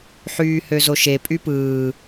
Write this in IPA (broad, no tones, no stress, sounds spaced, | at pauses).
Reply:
ħ yː h ø z o ʃ e pʼ y p ɯː